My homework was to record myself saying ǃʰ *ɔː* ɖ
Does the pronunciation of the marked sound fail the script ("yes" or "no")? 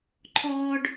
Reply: no